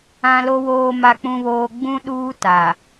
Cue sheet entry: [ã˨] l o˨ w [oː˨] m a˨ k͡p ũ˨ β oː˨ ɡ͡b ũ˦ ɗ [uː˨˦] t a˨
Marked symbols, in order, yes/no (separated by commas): yes, yes, no